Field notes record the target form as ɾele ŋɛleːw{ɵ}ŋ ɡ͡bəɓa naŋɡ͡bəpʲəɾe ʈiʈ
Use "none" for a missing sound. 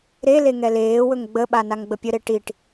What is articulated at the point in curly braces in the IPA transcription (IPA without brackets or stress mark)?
ɵ